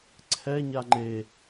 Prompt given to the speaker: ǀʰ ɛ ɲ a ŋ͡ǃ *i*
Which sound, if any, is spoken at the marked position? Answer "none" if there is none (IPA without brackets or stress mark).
e